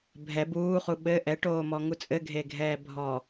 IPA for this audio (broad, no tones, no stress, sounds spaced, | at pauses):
bʱ ɛ b uː χ u ɓ ɘ ʔ ɛ ʈ oː m ɔ ŋ u t͡sʼ ɘ ɡʱ e ɡʱ ɛː bʱ ɔ